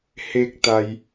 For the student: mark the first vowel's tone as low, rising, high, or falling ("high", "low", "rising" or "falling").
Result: high